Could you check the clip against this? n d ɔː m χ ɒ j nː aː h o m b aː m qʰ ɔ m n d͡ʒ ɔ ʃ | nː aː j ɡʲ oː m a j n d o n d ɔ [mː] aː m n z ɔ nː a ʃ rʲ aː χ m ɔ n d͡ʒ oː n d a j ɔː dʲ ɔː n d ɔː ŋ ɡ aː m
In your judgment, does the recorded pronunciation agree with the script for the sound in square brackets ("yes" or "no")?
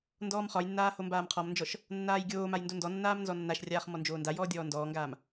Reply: no